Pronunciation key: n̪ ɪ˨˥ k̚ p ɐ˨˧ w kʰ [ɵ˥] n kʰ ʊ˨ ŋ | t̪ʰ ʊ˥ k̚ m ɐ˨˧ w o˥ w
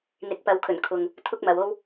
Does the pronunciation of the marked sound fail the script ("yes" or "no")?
yes